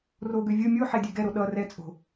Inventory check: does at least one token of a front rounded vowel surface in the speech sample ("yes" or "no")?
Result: yes